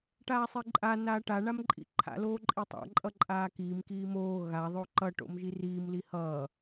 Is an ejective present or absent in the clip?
present